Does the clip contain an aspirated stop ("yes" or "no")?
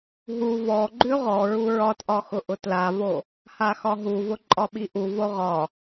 no